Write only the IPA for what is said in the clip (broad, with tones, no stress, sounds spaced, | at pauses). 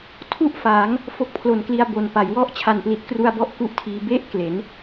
tʰ u˥˩ ʔ f aː˩˦ ŋ | f o˦˥ k̚ pʰ l o˨˩ n k l i˧ a̯ b o˨˩ n p a˩˦ j w ɔ˥˩ ʔ t͡ɕʰ a˨˩ n p l i˨˩ t̚ k r u˧ a̯ b ɔ˦˥ ʔ k u˥˩ ʔ tʰ iː˧ b e˥˩ ʔ k l e˩˦ n